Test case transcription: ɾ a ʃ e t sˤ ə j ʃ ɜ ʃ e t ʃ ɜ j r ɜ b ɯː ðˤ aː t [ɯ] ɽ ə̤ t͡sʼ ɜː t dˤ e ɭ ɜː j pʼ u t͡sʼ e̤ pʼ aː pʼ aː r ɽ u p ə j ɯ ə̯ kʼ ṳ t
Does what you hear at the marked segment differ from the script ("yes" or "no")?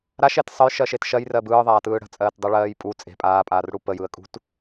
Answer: yes